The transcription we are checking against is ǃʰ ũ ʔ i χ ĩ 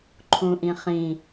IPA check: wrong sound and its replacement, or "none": i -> ĩ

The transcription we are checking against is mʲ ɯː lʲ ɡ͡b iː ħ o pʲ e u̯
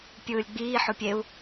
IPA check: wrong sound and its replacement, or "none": mʲ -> pʲ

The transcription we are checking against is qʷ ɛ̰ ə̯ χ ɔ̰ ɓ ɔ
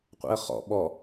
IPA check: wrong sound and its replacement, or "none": none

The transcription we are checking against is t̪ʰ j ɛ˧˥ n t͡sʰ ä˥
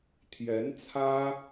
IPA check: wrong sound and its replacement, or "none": none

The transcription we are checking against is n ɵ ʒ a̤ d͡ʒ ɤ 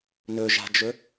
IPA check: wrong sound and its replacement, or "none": ɤ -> ɵ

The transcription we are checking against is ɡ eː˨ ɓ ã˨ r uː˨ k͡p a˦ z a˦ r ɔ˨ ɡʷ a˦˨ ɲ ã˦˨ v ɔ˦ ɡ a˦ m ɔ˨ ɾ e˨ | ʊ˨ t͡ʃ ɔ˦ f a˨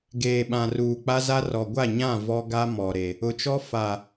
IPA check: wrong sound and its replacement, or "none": none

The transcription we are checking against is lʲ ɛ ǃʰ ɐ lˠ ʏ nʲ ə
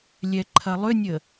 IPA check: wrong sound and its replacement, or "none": none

